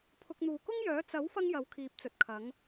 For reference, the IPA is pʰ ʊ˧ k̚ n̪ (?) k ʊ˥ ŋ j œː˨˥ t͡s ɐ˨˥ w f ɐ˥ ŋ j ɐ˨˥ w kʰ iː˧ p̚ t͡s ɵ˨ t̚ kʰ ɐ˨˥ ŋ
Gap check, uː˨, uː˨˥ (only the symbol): uː˨